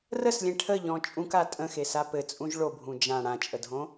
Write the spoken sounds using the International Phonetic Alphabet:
r ə s lʲ ẽ ʈʰ ə ʎ ɔ̃ t͡ʃʼ ũ k a tʼ ə̃ x e s a p ɘ t͡sʼ ũ ʒ ɭ o bʱ ũ d͡ʒ ã ɽ ã t͡ʃʼ ə dʱ õ

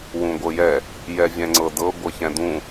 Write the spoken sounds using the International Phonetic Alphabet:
w ũ ɡʷ ɤ j ɛ | j ɛ vʲ ɛ̃ ŋ͡ǀ ɤ d ɤ ɡʷ ɤ ç ɛ̃ d ũ

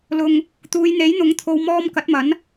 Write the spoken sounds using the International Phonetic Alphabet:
l ʊ˧ ŋ | t̪ uː˨˧ j n̪ e˨˥ j n̪ ʊ˨˥ ŋ t̪ʰ o˨˧ w m ɔː˧ m k ɐ˨˥ t̚ m ɐ˨˥ n

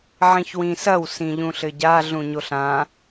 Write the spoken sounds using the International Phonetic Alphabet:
ʕ ĩ ç w ĩ s ɐ w s ĩ ʎ ũ ɬ ɘ ɟ a ɮ ũ ɲ o ɬ ã

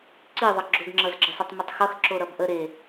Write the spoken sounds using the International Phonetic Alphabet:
ǀ i ðˤ ʌ ɡ͡ǁ o ɡ ŋ͡ǁ ʌ z ɡ͡ǁ ə sˤ i tˤ m ə tˤ x ʌ x ǁ o ɾ ʌ b ʔ ə ɾ e

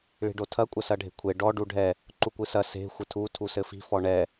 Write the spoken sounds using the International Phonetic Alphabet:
ɭ i̤ ɖ o tʰ ɐ kʷʼ ɐ s ɐ ɖʱ e̤ kʷʰ e ɖ ɔ ɖ u ɖʱ ɛ | ǃ u kʷ ɨ s ɐ s e̤ xʷ ɘ tʰ u tʰ u s ɘ f i̤ f ɔ ɳ ɛ

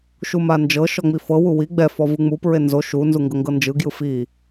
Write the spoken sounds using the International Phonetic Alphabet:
ʃ u m a n d͡ʒ ɤ ʃ ɔ ŋ͡m i f ɤ w u w i ɡ͡b ɛ f ɔ v ɯ ŋ͡m u p ɹ e n z o ʃ u n z u ŋ ɡ ɤ ŋ ɡ ɤ n d͡ʒ ɯ ɡ j ɯ f i

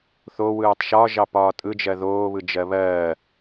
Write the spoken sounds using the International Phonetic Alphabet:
θ o w ɯː tˤ ʃ ɒ ʒ ɑ p ɒː tʼ ɯ d͡ʒ ɜ ð oː β ɯ d͡ʒ ɜ β ɜː

